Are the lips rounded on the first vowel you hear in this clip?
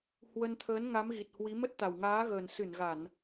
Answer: no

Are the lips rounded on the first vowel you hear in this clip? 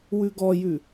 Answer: yes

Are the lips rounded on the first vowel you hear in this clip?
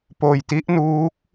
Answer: yes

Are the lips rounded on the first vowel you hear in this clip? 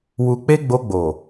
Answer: yes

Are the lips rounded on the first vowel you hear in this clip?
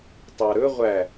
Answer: no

